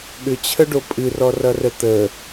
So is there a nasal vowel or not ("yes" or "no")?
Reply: no